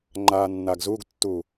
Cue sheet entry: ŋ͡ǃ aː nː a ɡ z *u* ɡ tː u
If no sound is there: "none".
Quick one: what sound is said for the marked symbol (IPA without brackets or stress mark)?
u